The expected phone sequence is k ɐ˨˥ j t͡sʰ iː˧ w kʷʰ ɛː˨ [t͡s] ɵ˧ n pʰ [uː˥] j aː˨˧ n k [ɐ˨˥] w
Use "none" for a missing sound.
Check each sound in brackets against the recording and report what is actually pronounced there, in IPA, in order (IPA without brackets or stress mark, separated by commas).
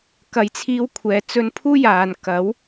t͡s, uː˥, ɐ˨˥